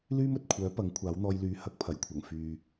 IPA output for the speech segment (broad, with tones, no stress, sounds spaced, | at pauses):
l yː˥ m ɵ˨ t̚ kʷʰ œː˨˥ p ɐ˨˥ ŋ kʷʰ aː˨˥ w n̪ ɔː˧ j l yː˨˥ h ɐ˨˥ k̚ pʰ ɐ˨˩ j kʷʰ ɐ˨˩ ŋ f yː˨